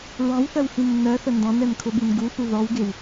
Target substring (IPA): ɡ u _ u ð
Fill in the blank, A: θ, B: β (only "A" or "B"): A